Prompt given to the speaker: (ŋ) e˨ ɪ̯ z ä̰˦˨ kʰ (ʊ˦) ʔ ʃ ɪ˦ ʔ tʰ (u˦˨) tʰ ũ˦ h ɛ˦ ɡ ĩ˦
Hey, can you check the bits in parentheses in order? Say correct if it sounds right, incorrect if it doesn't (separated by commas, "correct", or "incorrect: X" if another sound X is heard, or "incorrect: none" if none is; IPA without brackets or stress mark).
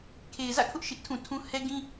incorrect: kʰ, correct, incorrect: ũ˦˨